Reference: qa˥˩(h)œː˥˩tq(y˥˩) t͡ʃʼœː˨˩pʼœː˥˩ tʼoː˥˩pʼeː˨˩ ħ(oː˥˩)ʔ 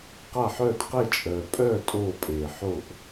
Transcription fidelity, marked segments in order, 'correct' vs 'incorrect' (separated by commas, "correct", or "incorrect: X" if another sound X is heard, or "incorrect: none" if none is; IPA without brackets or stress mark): incorrect: ħ, incorrect: e˥˩, incorrect: o˥˩